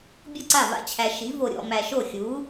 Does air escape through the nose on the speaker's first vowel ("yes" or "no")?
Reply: no